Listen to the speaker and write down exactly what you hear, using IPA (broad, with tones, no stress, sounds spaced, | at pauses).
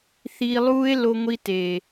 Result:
θ iː˧ lˠ uː˦ e̯ l o˧ ŋʷ i˧ t eː˨